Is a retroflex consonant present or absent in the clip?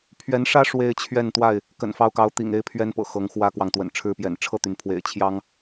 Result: present